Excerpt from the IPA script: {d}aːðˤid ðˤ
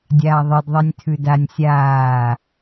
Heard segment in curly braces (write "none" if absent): dʲ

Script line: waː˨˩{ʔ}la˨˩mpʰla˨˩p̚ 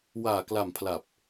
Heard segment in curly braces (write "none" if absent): k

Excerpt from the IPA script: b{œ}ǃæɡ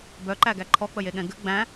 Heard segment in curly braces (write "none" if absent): œ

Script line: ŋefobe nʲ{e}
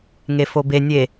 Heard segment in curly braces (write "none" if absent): e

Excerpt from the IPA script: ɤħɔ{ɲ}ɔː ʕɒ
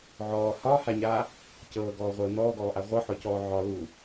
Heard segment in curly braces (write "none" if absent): c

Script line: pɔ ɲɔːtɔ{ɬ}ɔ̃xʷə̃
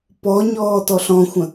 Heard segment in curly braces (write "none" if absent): ɬ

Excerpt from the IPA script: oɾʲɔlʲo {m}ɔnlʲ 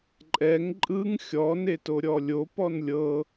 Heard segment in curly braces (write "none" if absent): p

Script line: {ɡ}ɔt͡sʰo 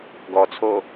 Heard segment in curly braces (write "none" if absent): ɡ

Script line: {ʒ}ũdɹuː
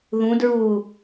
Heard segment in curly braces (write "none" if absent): ð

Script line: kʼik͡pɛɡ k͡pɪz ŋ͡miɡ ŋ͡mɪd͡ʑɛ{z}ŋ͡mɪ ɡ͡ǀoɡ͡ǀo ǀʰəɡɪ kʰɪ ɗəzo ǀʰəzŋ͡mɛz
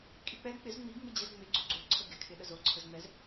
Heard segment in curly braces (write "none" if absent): z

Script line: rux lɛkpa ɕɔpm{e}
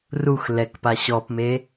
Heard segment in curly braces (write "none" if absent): e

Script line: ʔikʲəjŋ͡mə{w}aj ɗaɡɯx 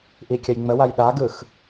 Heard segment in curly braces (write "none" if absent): w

